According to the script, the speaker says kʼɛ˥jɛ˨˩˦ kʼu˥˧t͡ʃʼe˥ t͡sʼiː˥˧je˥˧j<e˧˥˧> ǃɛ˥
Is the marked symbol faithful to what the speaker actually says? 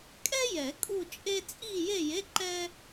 yes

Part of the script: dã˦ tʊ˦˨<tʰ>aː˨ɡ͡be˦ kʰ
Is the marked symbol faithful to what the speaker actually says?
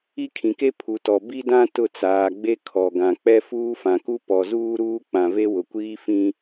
no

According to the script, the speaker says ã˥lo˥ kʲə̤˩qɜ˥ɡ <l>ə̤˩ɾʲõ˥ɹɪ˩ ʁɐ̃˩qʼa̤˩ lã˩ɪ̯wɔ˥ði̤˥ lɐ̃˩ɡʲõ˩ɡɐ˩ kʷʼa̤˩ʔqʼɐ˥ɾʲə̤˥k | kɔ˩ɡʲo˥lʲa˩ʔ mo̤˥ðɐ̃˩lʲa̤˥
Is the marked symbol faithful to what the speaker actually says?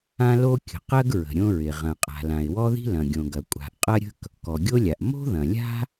no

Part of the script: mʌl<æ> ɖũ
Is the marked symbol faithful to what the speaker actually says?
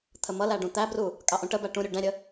yes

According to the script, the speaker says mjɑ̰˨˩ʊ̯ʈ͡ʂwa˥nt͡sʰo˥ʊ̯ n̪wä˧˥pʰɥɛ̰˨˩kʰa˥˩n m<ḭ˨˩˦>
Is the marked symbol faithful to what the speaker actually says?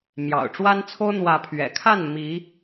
no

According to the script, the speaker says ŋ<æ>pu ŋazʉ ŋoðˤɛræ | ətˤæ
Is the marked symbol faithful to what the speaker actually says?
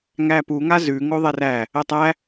yes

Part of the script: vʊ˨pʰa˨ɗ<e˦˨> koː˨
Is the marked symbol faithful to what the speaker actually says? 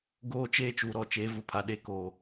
yes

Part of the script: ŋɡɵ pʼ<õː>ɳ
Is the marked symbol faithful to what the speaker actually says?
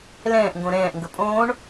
yes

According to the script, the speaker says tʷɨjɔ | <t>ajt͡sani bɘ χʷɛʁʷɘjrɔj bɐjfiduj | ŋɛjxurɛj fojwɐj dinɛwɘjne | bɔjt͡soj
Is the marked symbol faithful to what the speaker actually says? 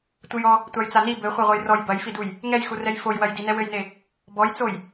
no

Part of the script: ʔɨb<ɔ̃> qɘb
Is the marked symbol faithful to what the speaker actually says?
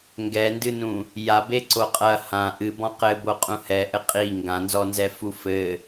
yes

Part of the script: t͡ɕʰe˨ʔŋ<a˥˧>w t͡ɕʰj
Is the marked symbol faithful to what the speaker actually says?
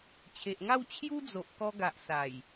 yes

